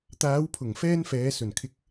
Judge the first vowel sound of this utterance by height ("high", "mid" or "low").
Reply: low